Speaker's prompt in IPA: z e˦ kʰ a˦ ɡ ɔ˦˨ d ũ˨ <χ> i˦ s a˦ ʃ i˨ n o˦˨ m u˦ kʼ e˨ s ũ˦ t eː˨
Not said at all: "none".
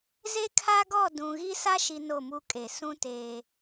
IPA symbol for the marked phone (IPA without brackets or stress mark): ɣ